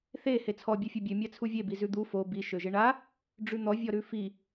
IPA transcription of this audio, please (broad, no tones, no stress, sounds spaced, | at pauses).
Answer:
θ e h e t͡sʰ ɔ bʲ e fʲ e bʲ ø mʲ a t͡sʰ u vʲ e b i z ʉ d̪ u f o b i ʃ ø ʒ e ɳ a | ɖ͡ʐ ʉ n̪ ɔ vʲ ɔ ɾ ʉ f i